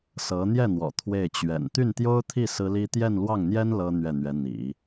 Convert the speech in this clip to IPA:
sɤ˧˥ n̪jɛ˥˩n̪wɔ̰˨˩ t̪ʰwe˥˩ɪ̯ t͡ɕɥɛ̰˨˩n t̪y˥˩nt̪jo˥ʊ̯t̪ʰi˥˩ sɹ̩˥li˥ t̪jɛ˥˧nlwɑ˥˩ŋn̪jɛ˥n lɤ˥ n̪ɥɛ˥˩n̪ɥɛ˧˥ n̪ḭ˨˩˦

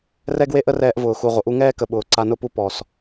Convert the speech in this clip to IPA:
rɛ˦ɡwe˦ʔə˦rɛː˧ʔ vʊː˨xu˨ ʁʷə˨ʔu˦ ŋɛː˦kə˨ ɓʊː˨ǀa˧nʊ˦pu˦ pɔ˨s

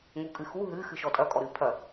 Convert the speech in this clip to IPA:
ŋukʼɨxu ɦɨ xɨʃɔtʼɐ kʼɔɾɨpʰɐ

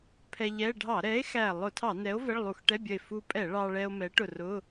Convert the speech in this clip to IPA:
pʰɛ˧ʎɛ˧˥˧ ɖʱɑ˧˩˧ɾɛ˨˥e̯ xæ˧˩ lˠʊ˧˩˧tʰɑ˧˩˧nɛ˨˥o̯ vɛ˧˥˧ɭlˠu˧˩˧x ʈɛ˧˥˧bʲʌ˧˩e̯ fu˧pʼɛ˧˩˧ ɭɑ˧ɭɛ˧o̯ mɛ˨˥ʈʊ˧˩rʊ˧˥˧

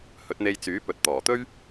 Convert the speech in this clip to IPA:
hɵ˨˥t̚n̪e˧j t͡syː˨˥ pɵ˨t̚t̪ɔː˨˩t̪ɵ˥ɥ

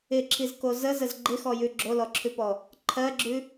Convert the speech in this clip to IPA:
ɪǁʰizko zəzəz ɡ͡ǃɪxɔjʉ ɡ͡ǁolɔǁʰʉpɔ | ǃʰɜɡ͡ǁʉ

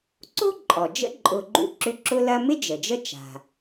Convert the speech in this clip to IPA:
ǀo̤˥ǃʼɔ˩d͡ʒə̰˦ ǃʼʊ˨ɡ͡ǃṵ˦ǁʏ˦ ǁʊ˦lɐ˦mɪ˥ d͡ʒə˩d͡ʒə˦ t͡ʃa̤˨

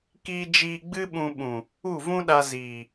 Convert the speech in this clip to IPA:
kiː˧d͡ʒiː˧ ɡ͡bɨ˦ɓũ˧ ɓũ˨ | u˦˨vũ˦ɗa˧ ziː˨

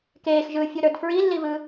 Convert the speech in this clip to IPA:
keːxʒɯːfʲuɾə˞d fɹilːivɯ

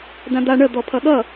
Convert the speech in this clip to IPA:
dãd̪a ɳə d̪ɔpʰʌɠʌ

